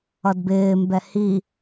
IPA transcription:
ʌ d b ɪː m b ɛ h i

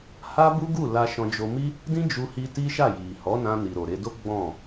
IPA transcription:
h a˦ b u˦ ɡ u˦˨ l a˧ ʃ ɔ̃˧ d͡ʒ o˧ m i˦ | d ĩ˦ d͡ʒ u˧ h i˧ t i˦ ʃ a˦˨ j i˨ h ɔ˨˦ n ã˧ n i˨ ɾ o˨ ɾ e˧ d o˦ ɡ͡b ɔ̃˦˨

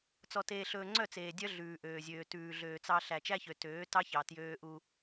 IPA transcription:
t͡s ɔ˨ t eː˨ ɬ ɵː˨ ŋ͡ǀ œ˦˨ t͡s eː˨ dʲ œ˦ ɮ ʉː˨ ʔ øː˨ zʲ øː˨ t ʉː˨ ɮ øː˨ t͡s ɑ˦ ɬ æ˨ t͡ʃ æ˦ ç ø˨ t øː˨˦ t ɑ˦ ç ɑ˨ t j øː˦ ʔ u˦

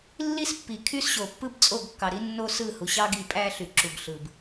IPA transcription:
lː i˦ s pː i˨ kʰ y˦ s ɕ o˨ pː ɯ˦ b t͡sʼ o˦˨ ɡ kː ɑ˨ ɾ i˦ nː o˦ s ɯ˦˨ h u˨ ɕ ɑ˦ ɡ i˨ pʼ æ˦ ɬ y˨ ǁ u˨ ɡ ɬ ɯ˨ b

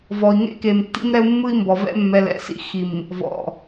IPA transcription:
v ɔ˨ i̯ ŋ ḛ˦ k e˨ m tː ḭ˦ m ɾ ɛ˦ u̯ mː ɯ˦ i̯ m b ɔ˨ v ɛ̰˦ mː ɛ˨ l ɛ̰˨ s ḭ˦˨ x i˨ m | v ɔ̰˨

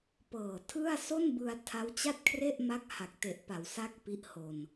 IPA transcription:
p ɤː˨˩ tʰ ɯ˥˩ a̯ s o˥˩ n b ɯ˧ a̯ tʰ a˦˥ w t͡ɕ a˥˩ t̚ kʰ r e˥˩ ʔ m a˥˩ k̚ h a˨˩ k̚ t e˨˩ ʔ p a˩˦ w s a˥˩ k̚ p i˦˥ ʔ h o˧ n

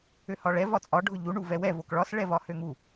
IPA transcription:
ø h ɒ ɭ ɛ v ɒ t͡sʼ ɒ ɖʱ ʊ ʎ u ɳ u v ɛ w ɛ v o k ɭ ɒ s ɭ ɛ v ɒ h ø ŋ u

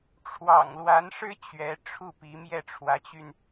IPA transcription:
ʈ͡ʂʰ w ɑ̰˨˩ ŋ l w a˧˥ n ʂ ɻ̩˥ t͡ɕ ɥ ɛ˧˥ ʈ͡ʂʰ u˥˩ p i˧˥ m j ɛ˥˩ ʈ͡ʂʰ w ä˧˥ t͡ɕ y˧ n

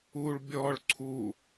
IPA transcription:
u ɭ bʲ ɔ ɭ ǀʰ u

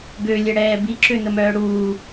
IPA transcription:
ɡ ø lʲ ɛ ɽ ɛː b i ǁ ø n ə m œː ɽ uː

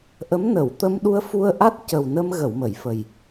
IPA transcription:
ʔ ə˧˥ m n ə˨˩˨ w t̪ ə˧ m ɗ u˧ ə̯ f u˧ ə̯ ʔ a˦˥ t̚ c ə˨˩ w n ə˧ m ɣ ə˨˩˨ w m ə˨˩˨ j f ə˨˩ j

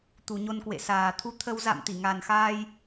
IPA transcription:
t̪ u˨˩ ɲ o˧ n k w ḛ˧˨ s aː˨˩ t̪ʰ u˨˦ t̪ʰ ə˧ w z a̰˧˨ m t̪ i˧˩ ŋ a˨˩ n x aː˧ j

